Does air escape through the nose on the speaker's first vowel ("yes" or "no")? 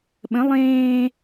yes